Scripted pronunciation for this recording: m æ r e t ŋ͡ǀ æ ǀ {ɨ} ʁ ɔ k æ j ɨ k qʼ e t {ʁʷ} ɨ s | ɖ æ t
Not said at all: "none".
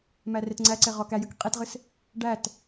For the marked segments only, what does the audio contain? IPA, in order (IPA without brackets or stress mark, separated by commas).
e, ʁ